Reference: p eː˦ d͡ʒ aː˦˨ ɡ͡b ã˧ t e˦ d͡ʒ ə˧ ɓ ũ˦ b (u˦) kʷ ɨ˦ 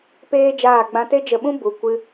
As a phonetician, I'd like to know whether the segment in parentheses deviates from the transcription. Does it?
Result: yes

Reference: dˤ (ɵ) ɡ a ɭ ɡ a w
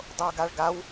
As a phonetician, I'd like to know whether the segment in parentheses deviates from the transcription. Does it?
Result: yes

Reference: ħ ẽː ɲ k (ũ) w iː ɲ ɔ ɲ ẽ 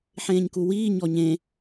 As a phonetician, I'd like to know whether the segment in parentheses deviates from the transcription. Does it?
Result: yes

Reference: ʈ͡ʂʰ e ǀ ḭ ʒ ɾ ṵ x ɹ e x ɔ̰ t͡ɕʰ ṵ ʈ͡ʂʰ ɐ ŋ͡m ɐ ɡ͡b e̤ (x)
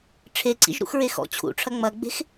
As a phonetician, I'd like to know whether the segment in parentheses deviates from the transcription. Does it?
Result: no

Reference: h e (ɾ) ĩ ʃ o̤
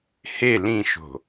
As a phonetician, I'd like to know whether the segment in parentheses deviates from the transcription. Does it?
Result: yes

